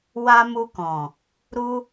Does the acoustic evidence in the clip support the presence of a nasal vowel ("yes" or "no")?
yes